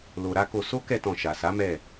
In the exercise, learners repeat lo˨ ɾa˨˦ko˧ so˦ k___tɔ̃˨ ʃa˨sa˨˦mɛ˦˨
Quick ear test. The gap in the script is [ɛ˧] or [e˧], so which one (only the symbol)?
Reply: ɛ˧